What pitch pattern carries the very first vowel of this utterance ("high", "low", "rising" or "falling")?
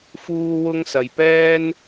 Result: high